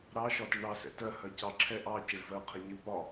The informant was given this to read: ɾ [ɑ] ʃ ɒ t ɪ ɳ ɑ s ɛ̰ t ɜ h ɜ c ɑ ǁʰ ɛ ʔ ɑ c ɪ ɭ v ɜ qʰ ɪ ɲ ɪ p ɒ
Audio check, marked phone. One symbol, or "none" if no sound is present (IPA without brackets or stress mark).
ɑ